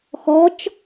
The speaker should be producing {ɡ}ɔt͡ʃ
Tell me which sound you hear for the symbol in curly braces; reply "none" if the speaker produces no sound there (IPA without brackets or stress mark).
x